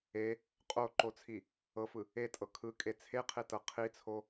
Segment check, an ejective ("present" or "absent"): present